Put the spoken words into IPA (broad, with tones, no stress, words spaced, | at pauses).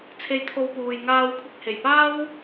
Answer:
t͡sʰe˧jt̪ʰo˧wpuː˨jŋaː˧w kʷʰɪ˧k̚he˨˩jpaː˥w